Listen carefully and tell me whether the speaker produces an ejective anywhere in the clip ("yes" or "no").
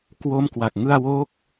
no